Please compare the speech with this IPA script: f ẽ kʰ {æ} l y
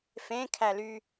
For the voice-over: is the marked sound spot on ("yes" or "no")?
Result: yes